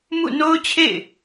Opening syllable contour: falling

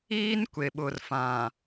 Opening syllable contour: high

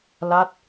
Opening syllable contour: falling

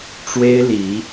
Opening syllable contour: high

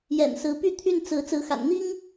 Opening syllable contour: low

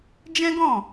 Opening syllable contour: high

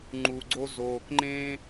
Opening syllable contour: low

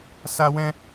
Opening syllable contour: high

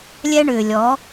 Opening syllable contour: high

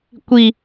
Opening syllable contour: high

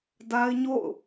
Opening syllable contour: high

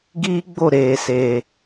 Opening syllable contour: high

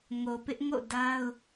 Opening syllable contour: low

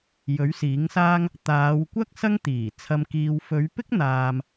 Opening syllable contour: rising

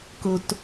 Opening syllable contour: low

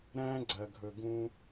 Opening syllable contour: high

